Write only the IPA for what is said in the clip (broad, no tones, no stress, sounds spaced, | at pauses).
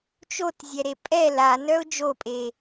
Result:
t͡ʃ o t zʲ ɛ ɾ e pʼ ɛ l a n œ ʊ̯ d͡ʒ o pʼ e